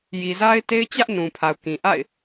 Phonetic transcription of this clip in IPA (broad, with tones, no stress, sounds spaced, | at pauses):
j i˨ z a˦ ɪ̯ t e˦ ɪ̯ t͡ɕ ä˦ ʔ n ũ˨ pʰ a˨ ʊ̯ k ĩ˨ ʔ a̰˦˨ ɪ̯